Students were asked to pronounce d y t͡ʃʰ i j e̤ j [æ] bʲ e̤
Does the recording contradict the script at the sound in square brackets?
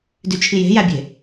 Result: no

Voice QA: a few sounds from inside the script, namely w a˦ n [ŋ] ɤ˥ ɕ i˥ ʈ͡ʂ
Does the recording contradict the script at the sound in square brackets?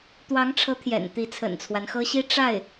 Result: yes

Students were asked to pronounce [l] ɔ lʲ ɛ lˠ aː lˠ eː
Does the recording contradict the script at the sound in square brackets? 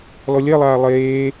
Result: no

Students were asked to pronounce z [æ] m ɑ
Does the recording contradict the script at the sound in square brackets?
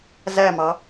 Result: no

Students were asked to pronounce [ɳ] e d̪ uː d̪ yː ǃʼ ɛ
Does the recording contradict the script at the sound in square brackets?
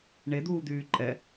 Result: no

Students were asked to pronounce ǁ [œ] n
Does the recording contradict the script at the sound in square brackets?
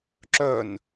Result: no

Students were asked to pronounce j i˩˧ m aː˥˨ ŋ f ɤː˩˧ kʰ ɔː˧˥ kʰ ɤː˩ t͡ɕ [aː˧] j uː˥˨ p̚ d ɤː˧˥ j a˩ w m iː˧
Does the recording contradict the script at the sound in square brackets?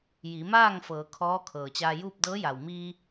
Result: no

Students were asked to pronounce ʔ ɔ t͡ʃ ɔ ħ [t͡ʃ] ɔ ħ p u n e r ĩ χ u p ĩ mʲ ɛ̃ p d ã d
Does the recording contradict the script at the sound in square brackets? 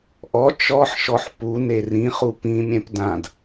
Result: yes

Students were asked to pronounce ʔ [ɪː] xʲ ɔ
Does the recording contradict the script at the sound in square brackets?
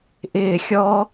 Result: no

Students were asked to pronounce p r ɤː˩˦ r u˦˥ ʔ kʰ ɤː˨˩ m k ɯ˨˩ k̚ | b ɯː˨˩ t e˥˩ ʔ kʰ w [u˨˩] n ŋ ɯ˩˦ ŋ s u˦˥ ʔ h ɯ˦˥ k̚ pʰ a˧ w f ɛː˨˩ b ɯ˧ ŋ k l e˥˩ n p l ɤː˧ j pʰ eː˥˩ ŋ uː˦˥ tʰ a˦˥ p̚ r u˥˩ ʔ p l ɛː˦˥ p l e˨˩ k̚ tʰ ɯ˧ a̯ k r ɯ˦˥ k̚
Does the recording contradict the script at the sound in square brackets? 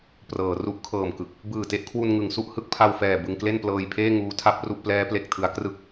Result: yes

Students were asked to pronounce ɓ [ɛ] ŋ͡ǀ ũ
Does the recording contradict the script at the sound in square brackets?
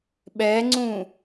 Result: no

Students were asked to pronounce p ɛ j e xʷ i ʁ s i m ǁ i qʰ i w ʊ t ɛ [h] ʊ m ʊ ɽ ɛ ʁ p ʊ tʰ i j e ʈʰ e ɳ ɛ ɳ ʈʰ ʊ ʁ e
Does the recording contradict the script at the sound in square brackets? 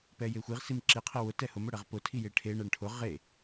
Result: no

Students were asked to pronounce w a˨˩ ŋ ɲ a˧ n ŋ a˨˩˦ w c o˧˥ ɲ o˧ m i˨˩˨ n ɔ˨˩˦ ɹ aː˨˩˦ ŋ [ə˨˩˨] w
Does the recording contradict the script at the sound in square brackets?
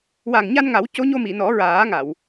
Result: yes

